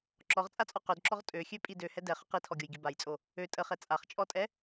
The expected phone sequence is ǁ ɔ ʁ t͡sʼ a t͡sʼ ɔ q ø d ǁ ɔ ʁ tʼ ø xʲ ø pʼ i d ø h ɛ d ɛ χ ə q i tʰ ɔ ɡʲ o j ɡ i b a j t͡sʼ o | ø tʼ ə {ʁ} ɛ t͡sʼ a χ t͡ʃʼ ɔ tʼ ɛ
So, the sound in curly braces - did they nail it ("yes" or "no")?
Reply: no